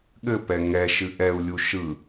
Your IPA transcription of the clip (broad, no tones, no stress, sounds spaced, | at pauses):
ɠ ɘ p ɛ ŋ ɛ ʃ ɨ ʔ ɛ u̯ lʲ u ʃ ɯ